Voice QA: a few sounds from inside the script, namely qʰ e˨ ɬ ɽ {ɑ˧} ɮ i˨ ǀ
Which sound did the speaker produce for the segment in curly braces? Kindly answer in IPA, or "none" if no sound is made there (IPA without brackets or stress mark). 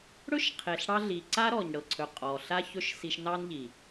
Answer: ɑ˧